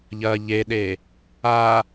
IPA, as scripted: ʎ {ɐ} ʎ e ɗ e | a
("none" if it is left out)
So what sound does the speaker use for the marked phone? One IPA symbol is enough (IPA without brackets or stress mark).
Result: ɐ